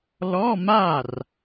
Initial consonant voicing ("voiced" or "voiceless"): voiced